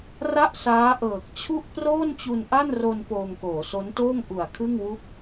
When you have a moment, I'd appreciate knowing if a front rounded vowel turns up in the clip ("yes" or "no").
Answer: no